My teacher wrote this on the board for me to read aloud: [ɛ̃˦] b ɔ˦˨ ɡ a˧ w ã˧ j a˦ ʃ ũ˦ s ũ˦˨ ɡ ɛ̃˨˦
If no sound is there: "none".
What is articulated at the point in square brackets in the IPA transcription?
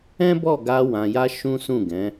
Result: ɛ̃˦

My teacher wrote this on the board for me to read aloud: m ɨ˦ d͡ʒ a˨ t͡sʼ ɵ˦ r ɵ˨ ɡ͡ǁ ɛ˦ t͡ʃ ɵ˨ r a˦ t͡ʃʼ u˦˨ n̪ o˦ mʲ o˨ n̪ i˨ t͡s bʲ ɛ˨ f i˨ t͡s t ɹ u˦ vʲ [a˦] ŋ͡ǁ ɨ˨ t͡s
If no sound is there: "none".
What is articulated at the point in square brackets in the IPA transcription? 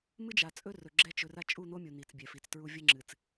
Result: ə˦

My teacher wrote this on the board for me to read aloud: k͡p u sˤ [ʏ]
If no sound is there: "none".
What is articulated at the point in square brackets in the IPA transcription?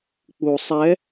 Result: ɛ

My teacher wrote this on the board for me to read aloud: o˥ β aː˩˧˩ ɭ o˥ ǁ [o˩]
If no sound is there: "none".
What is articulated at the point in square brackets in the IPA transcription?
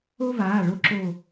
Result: o˥˨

